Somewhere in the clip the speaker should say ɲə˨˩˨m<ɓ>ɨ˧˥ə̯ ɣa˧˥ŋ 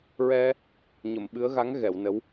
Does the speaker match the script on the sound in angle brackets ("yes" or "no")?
yes